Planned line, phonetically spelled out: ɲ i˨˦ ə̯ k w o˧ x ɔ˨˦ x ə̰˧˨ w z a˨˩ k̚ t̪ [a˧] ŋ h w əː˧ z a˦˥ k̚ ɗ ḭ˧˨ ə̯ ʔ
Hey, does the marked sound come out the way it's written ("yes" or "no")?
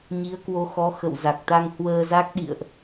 yes